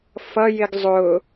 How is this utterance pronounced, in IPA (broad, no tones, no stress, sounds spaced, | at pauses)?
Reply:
f ʌ j ɪ ɡ zˤ ʊ